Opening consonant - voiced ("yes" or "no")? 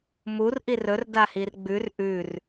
yes